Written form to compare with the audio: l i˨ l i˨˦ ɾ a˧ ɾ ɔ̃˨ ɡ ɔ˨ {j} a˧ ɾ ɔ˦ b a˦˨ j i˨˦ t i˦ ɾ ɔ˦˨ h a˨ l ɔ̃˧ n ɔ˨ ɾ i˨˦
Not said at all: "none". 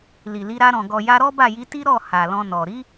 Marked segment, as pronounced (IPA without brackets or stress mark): j